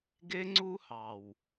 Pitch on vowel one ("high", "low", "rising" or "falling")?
high